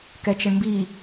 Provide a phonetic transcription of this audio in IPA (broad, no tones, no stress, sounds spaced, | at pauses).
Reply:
k ɛ t͡ʃ ə ɳ m b i